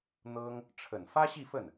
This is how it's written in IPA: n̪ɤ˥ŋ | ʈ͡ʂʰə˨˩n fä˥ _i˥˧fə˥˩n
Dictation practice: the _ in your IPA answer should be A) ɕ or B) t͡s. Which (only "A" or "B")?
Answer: A